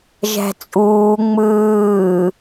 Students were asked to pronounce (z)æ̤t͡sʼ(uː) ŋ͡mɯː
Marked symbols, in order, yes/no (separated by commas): no, yes